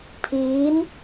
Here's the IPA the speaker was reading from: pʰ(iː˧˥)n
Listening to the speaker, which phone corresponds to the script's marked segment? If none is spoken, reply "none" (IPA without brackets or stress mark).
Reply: iː˧˥